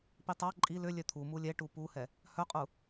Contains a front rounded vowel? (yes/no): yes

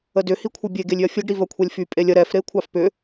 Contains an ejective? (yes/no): yes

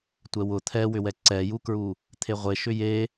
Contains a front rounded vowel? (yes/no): yes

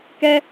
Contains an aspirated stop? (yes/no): no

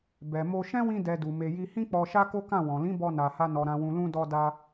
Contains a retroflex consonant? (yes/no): no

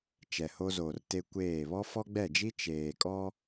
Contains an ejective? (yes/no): yes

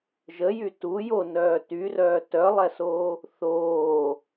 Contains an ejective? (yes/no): no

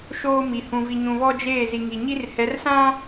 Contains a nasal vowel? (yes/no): yes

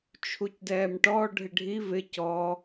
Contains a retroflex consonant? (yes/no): yes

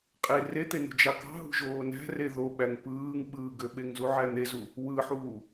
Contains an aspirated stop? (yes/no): no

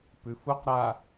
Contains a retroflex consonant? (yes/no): no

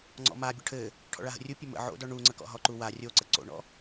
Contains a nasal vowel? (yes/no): no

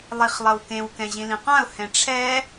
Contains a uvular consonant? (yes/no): yes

